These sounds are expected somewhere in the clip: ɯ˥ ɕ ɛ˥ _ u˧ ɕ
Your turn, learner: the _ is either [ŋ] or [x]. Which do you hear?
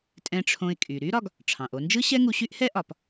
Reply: ŋ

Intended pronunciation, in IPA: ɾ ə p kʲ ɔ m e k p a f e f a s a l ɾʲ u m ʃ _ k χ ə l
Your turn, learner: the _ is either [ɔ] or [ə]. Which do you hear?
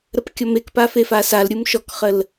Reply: ɔ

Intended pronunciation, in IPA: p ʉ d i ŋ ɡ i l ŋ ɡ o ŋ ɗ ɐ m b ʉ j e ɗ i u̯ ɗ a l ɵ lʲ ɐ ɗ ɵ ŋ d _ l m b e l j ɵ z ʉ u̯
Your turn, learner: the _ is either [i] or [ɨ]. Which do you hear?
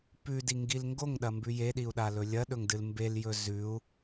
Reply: ɨ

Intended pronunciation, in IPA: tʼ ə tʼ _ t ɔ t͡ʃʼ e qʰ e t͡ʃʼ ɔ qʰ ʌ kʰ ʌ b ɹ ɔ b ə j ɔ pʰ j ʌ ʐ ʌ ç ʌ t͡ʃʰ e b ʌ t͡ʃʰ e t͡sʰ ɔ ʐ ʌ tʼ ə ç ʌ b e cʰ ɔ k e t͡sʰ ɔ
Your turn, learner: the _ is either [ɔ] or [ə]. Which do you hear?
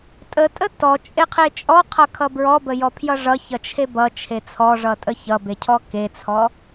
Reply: ə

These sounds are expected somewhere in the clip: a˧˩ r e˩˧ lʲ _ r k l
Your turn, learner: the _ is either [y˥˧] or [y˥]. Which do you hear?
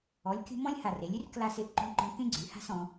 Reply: y˥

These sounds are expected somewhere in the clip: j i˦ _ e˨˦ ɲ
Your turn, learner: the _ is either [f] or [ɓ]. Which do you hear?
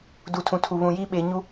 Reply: ɓ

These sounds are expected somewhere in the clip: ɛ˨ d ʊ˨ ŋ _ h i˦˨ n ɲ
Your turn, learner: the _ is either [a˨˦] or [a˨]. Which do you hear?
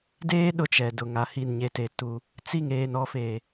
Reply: a˨˦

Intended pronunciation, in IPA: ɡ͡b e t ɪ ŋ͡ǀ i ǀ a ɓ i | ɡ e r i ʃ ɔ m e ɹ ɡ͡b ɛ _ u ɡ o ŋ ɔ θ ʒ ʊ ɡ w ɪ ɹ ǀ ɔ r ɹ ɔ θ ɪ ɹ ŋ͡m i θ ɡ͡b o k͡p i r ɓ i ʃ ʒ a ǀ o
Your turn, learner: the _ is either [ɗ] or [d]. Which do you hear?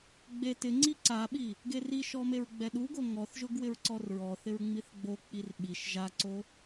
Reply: ɗ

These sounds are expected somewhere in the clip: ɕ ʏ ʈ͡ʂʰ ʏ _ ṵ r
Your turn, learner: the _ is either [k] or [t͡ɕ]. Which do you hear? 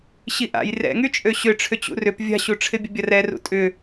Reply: t͡ɕ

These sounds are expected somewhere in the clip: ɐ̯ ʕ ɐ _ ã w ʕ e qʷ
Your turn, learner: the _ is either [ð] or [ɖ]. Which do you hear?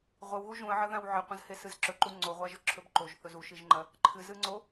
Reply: ð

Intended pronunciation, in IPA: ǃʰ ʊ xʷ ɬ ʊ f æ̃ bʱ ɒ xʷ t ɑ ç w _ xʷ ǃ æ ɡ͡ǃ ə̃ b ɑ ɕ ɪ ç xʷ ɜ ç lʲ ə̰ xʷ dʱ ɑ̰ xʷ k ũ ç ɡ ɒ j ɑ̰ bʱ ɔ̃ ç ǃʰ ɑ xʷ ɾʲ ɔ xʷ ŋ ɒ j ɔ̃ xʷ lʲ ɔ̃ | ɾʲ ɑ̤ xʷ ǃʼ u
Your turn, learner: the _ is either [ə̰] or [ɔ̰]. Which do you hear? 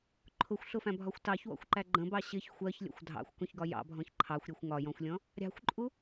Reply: ɔ̰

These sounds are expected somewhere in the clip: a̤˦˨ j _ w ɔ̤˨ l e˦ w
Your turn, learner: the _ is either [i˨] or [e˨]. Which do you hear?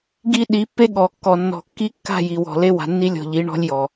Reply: i˨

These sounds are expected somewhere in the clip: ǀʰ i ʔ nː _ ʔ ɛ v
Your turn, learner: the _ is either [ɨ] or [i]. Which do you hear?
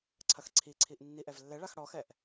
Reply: i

